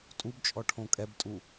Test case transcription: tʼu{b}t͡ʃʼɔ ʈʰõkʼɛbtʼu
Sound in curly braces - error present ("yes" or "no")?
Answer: no